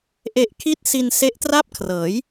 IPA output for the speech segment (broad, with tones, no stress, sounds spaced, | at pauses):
ʔ e˨˩ ʔ kʰ i˦˥ t̚ s i˧ n s e˦˥ ʔ t r a˥˩ p̚ kʰ r ɤː˩˦ j